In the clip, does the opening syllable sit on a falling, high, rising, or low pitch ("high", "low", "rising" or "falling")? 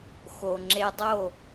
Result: low